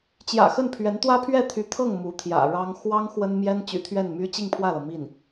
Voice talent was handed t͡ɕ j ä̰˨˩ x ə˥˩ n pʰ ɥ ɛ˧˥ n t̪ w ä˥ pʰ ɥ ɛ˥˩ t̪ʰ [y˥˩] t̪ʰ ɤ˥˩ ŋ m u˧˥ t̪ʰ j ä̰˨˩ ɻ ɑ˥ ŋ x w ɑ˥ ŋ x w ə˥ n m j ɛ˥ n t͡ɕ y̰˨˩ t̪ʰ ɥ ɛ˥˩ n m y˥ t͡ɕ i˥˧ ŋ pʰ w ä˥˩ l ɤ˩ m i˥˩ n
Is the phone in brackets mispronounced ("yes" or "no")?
yes